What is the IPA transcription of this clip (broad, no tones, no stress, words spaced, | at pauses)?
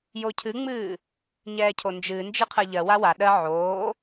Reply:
jocʰɨŋ͡mɨː | ɲɛːcʰond͡ʒɨnd͡ʒɨ qʰɜʎɜwa wa ɗɜ ʕoː